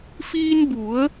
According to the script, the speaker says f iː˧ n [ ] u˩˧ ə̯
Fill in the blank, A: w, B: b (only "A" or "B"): B